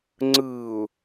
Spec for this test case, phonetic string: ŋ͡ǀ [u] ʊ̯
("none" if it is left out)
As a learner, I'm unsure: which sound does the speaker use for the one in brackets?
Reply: ɯ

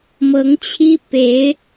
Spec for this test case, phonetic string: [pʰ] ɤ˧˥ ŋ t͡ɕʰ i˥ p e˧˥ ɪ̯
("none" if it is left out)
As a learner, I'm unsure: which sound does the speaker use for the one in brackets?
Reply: m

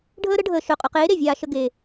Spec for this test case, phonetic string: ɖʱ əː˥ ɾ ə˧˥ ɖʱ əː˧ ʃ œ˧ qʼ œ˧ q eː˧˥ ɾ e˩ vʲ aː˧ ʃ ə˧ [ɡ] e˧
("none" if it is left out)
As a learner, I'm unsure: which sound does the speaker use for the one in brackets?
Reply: ɡ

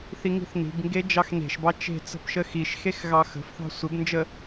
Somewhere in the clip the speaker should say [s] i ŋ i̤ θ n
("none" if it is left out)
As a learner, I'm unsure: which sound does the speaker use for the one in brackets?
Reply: θ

